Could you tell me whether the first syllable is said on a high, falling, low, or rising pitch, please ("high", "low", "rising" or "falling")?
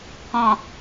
low